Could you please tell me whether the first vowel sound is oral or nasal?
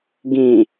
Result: nasal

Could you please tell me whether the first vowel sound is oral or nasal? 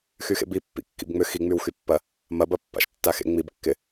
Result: oral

